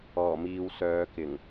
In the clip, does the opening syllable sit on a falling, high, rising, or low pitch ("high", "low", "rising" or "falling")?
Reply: low